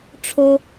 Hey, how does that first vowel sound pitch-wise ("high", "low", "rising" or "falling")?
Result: high